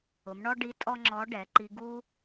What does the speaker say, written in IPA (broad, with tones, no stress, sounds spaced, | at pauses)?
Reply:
ʊ˩˧ m ɳ ɔ˥ ɖ i˧˥ tʼ ɔ˥ ŋ͡ǁ ɔ˧˥ ɖ ɛ˩˧ ǃ i˧ ɡ u˥